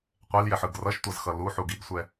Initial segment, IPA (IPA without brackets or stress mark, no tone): qʷ